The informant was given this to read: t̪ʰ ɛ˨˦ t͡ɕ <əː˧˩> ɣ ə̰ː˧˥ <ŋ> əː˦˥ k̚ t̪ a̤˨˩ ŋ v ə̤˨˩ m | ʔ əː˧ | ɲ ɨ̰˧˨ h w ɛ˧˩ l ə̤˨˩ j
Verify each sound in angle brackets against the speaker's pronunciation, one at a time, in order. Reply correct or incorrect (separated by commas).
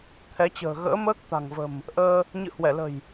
incorrect, incorrect